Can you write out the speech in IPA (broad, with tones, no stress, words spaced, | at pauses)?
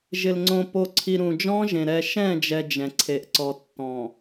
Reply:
ʒɪ˨lŋ͡ǀõ˨ po˨ ǀʰi˨ ɾũ˨d͡ʒɔ̃˦ʒẽ˨ ɾɛ˨ʃɛ̃˦˨d͡ʒɛ˨ d͡ʒɛ̃˨ǀʰe˨ʔ ǀɔ˨tːɔ̃˨